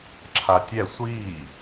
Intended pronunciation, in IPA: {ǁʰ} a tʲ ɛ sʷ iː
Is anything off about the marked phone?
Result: no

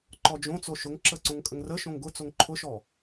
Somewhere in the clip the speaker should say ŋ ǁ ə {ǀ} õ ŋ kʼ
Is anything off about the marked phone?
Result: no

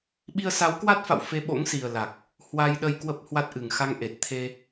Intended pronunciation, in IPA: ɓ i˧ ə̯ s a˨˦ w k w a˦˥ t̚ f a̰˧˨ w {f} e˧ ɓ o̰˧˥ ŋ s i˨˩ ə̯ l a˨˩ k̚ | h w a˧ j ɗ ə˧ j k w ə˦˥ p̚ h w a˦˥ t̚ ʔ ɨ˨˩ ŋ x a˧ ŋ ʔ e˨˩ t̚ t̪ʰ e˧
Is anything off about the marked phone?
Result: no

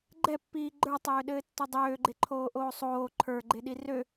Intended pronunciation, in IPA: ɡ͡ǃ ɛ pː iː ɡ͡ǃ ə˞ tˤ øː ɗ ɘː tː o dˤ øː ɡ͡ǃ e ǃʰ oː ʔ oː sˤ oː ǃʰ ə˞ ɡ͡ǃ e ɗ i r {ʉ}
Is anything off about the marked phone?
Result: yes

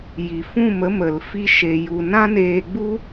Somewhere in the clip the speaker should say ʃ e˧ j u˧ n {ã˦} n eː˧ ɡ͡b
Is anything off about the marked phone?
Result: no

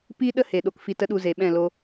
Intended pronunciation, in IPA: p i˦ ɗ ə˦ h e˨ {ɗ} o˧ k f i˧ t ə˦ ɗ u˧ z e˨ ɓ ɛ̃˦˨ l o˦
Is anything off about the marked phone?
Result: no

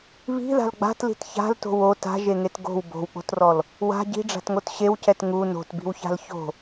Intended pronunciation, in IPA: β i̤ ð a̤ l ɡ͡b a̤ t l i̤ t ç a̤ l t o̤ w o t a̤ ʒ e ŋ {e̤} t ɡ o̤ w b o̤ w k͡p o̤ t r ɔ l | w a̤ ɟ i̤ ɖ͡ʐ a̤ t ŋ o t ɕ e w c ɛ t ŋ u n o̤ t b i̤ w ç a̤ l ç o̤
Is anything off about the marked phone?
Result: yes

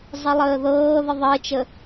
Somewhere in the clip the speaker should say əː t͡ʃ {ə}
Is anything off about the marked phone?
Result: no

